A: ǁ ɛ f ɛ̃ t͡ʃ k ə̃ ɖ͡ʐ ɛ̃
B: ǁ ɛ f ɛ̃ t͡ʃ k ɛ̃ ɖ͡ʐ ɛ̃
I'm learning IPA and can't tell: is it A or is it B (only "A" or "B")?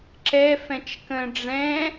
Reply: A